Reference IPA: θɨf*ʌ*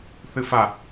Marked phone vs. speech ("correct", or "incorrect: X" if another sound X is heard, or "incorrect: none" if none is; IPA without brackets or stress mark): incorrect: a